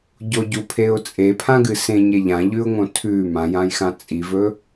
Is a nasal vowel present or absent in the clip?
present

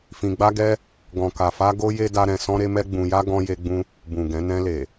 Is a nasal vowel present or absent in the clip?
present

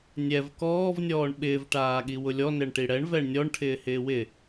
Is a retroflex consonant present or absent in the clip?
present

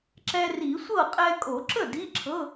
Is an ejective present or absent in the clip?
present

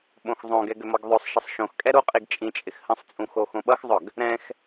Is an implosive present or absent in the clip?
present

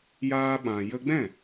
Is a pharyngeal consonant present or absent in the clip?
absent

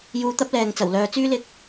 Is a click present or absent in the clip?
absent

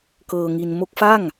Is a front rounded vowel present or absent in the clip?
absent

